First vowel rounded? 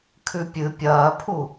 yes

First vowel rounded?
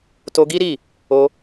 yes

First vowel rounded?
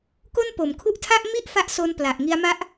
yes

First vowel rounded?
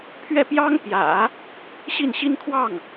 no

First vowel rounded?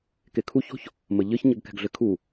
no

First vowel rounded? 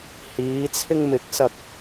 no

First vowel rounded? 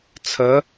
no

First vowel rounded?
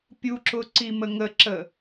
yes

